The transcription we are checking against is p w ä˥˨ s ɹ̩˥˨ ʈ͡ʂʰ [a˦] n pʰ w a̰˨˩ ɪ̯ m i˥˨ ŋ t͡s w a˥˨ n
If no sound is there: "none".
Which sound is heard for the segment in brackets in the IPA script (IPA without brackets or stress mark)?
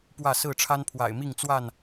a˦